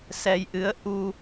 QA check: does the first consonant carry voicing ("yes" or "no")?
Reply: no